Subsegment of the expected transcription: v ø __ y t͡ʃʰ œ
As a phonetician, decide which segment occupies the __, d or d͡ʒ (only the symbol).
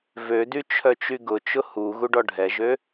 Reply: d